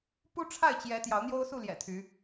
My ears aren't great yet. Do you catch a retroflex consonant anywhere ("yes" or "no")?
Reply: yes